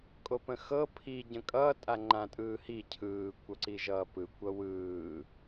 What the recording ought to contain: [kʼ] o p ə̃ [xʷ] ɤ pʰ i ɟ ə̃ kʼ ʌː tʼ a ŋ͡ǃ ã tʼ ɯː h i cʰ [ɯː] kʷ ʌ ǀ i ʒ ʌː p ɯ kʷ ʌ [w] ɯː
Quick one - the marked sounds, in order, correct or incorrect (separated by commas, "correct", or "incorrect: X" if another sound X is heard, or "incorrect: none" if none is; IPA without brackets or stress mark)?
correct, incorrect: x, correct, correct